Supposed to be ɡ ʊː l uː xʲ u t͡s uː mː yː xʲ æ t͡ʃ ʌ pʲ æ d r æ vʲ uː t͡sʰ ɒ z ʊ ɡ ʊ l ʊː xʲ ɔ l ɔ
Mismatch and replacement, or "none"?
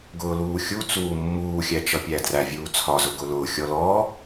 yː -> uː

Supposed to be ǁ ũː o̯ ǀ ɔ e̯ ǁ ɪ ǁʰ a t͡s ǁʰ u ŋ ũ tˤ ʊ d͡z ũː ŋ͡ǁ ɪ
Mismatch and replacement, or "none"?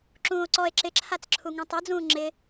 none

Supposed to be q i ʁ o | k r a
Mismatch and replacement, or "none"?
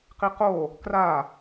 ʁ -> q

